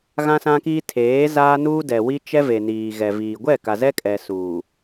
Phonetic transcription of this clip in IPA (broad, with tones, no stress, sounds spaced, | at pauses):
ɣ ã˦ s ã˦ k iː˦ tʰ eː˨˦ z aː˦ n uː˦ d ɛ˨ w i˦ t͡ʃ ɛ˦ v e˨ n iː˨ ɣ ɛ˨ v iː˨ ɡʷ ɛ˦˨ k a˨ z ɛ˦ kʼ ɛ˨ s uː˨